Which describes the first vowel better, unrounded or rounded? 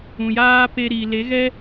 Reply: rounded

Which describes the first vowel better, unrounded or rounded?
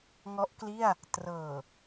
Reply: rounded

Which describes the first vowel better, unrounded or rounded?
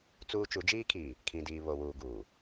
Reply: rounded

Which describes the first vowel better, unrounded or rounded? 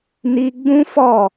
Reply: unrounded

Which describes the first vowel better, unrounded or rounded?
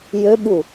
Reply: rounded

